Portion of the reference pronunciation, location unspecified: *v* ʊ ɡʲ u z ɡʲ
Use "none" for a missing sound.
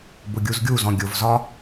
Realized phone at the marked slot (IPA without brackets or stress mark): b